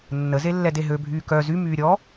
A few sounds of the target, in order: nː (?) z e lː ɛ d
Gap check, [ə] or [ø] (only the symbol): ə